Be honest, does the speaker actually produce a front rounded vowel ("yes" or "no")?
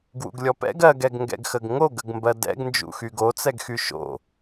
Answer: yes